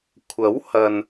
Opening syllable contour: rising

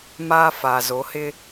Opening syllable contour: high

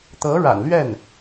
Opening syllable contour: rising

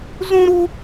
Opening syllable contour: high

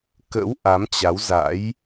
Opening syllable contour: rising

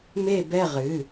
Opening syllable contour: falling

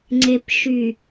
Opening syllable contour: low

